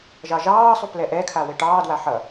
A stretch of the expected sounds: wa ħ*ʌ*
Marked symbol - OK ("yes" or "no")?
yes